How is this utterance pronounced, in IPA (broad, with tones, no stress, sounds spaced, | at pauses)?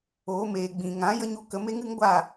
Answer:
oː˨˦ m eː˨ ɡ͡b ĩ˨ ŋ ã˨˦ j ə˦ ɲ u˧ k ə˨˦ m e˦ ŋ ɨ˦ ŋ ɡʷ a˦˨